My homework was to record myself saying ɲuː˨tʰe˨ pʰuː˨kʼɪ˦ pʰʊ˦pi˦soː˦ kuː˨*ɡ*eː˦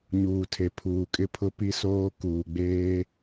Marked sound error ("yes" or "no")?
yes